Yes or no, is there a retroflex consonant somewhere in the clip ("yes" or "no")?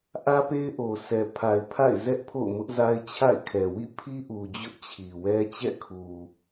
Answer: no